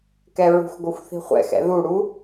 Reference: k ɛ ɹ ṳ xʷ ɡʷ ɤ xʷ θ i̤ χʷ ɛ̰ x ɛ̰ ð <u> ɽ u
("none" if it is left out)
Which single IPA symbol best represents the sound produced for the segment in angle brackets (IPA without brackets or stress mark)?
u